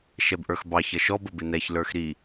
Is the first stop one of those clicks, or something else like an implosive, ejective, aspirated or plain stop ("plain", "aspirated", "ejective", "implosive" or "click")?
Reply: plain